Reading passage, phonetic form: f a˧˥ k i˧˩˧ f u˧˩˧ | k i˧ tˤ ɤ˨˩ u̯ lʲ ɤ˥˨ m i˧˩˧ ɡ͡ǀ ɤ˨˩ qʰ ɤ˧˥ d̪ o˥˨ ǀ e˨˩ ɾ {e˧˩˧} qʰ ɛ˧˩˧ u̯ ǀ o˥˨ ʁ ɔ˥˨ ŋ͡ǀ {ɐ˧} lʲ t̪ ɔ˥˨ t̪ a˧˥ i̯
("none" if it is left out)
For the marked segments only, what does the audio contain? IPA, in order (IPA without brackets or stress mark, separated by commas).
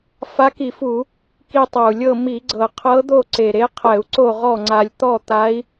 e˧˥, a˧